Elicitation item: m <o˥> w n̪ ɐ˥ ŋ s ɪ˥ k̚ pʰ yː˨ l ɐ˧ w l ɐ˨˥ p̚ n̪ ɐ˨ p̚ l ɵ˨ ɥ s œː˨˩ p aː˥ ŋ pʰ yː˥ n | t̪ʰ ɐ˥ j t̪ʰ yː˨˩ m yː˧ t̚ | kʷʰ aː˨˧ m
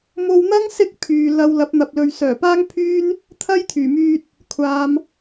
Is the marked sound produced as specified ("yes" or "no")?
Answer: no